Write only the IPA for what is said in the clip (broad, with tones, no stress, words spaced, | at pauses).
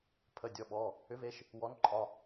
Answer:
pʰə˩˧˩dʲɔ˩˧˩ ɓɔ˩˧˩ | ʏ˨˥ve˨˥ʃ | wɔ˨˥nǃʼɒ˩˧˩